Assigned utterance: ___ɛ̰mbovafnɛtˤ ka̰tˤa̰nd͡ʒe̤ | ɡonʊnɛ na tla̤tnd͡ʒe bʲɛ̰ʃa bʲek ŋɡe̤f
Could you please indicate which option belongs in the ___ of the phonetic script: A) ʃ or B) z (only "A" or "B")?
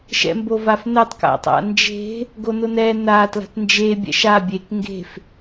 A